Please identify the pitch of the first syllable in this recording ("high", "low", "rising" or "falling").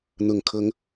low